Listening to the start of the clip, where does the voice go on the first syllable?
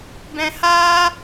high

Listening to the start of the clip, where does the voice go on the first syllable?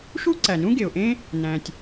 high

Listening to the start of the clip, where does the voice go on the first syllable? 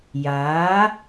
rising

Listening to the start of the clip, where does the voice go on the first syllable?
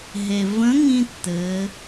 low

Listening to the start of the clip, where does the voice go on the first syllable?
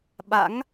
rising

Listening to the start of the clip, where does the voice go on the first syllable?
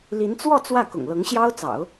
rising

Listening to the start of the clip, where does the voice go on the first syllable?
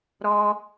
high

